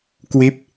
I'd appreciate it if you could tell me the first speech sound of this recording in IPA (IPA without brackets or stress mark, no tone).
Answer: k